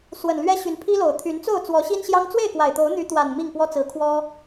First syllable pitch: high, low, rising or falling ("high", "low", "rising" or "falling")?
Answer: low